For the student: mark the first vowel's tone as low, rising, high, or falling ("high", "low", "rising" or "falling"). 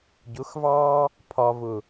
rising